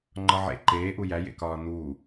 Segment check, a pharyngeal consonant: present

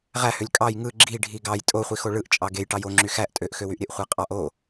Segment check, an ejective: present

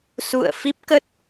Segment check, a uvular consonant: absent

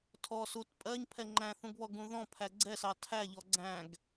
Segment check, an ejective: present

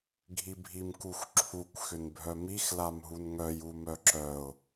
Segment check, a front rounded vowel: present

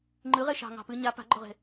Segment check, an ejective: absent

